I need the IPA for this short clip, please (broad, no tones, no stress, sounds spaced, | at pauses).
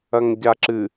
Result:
ɐ ŋ ɟ a ǁ ɨ